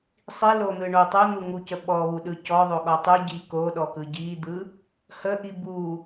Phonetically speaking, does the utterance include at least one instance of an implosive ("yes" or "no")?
yes